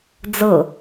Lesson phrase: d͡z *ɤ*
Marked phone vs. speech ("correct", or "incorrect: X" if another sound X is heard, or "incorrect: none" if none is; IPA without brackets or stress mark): correct